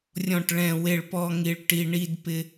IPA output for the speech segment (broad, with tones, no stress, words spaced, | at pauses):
rʲɔ̃˦˨ʈɭɛ̃˦˨ we˦˨ɭpɔ˦ ŋi˦ɭʈi˦ ɳi˦dpɪ˦